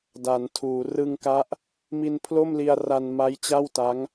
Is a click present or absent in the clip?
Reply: absent